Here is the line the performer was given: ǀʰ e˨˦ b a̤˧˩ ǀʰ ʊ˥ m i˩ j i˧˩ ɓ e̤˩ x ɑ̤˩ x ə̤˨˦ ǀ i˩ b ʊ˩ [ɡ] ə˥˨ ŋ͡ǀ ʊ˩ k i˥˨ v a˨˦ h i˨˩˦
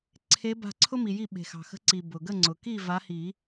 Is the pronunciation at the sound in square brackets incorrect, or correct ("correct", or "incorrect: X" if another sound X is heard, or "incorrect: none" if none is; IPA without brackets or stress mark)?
correct